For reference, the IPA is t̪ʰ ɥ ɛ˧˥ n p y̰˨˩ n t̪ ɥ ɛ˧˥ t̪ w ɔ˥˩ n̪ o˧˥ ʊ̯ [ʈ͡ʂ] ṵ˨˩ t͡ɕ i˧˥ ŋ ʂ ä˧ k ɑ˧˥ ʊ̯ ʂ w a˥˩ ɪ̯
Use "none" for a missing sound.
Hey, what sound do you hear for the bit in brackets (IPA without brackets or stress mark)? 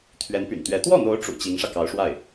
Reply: ʈ͡ʂ